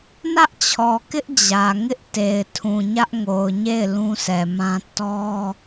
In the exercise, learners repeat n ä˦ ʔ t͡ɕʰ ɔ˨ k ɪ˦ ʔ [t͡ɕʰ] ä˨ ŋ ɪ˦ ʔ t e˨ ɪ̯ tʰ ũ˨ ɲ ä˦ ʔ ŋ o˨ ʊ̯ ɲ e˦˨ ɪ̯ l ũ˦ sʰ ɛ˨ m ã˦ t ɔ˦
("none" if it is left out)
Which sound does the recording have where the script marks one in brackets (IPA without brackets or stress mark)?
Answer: d͡ʑ